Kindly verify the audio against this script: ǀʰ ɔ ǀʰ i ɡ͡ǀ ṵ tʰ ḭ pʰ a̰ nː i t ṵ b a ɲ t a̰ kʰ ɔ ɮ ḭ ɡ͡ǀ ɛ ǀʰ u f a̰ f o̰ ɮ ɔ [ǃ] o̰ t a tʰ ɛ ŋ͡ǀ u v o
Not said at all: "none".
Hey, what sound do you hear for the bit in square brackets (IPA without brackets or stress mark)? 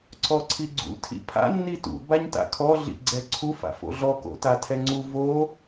k